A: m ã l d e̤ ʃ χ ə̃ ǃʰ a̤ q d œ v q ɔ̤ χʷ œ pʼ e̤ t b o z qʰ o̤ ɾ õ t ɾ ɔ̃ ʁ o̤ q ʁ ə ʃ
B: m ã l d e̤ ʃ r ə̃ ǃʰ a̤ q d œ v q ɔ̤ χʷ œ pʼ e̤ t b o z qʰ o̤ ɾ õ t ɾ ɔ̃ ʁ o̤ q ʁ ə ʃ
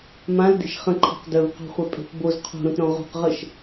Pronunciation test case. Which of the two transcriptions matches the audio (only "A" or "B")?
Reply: A